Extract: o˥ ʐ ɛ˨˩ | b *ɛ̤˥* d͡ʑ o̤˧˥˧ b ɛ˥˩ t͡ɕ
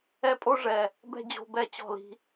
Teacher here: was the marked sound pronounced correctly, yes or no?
yes